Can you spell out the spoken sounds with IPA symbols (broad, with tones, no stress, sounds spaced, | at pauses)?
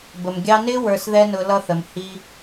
b ə˨ m ɡʲ ɑ˧ n ɪ˦ w ə˞˧ s ð ɛ˦ n ʊ˧ l ʌ˧ θ ə˨ m h i˧